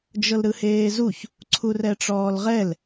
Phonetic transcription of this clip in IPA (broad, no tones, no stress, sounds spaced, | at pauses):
d͡ʒ ɤ l ɾ ɯ h eː z u ç | ǀʰ u r ɛ ʈ͡ʂ ɔː l ʁ ɛ l